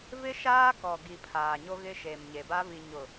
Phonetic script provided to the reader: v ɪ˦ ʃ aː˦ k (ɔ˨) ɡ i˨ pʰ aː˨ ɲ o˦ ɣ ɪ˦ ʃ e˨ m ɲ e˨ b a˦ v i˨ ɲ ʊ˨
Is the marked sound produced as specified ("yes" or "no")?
yes